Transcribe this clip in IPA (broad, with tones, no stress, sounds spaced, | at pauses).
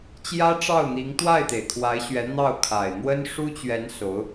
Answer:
t͡ɕ j ä˥ ʈ͡ʂ ɑ˥˩ ʊ̯ n̪ i˧˥ ŋ t̪ w a˥˩ ɪ̯ t̪ e˩ ɪ̯ kʰ w a˧˥ ɪ̯ ɕ ɥ ɛ˧˥ n̪ ɑ˥˩ ʊ̯ kʰ a˨˩ ɪ̯ n̪ w ə˥ n ʂ u˥ t͡ɕ ɥ ɛ˧˥ n s o˧˥ ʊ̯